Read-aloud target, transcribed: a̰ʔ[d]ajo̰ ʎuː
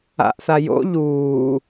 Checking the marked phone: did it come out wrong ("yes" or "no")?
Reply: yes